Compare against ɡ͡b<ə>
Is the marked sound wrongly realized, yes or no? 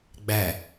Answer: yes